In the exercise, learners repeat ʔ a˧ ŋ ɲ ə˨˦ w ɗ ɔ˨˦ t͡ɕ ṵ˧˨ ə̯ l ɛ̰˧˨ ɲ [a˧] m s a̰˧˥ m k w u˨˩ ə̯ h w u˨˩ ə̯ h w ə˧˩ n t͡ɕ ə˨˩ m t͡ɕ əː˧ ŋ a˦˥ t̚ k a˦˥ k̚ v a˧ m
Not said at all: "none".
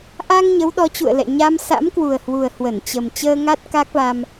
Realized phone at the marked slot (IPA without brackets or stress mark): a˧